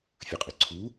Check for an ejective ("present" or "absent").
present